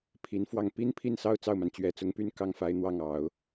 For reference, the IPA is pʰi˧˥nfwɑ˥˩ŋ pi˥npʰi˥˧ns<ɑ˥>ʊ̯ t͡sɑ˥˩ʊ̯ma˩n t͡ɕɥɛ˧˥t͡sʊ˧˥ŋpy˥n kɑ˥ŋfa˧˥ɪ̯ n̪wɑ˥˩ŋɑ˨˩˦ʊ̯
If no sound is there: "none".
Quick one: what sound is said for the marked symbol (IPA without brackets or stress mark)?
ɑ˥˧